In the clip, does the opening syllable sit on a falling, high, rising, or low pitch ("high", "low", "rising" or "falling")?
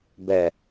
low